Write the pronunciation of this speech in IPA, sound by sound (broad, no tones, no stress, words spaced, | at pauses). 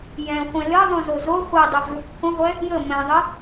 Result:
jɛ̃ χʷɛ̃lɘ ðˤũzozo χʷɛdˤɛvluk χʷə̃ʁʷɛ | jə mɛ̃ðˤɘ